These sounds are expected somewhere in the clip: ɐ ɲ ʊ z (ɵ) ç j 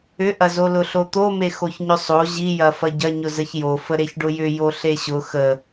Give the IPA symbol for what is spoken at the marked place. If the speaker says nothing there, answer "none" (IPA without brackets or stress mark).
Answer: ə